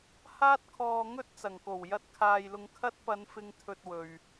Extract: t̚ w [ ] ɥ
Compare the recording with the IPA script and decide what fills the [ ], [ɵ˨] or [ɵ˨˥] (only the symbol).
ɵ˨